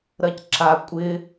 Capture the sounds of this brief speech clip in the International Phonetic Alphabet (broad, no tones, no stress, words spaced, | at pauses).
ɾɜcǁa kʷʼɪ